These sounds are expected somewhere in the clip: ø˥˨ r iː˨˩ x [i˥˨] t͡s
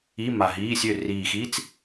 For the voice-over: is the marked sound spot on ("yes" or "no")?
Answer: no